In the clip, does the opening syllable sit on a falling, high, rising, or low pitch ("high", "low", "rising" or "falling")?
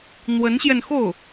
rising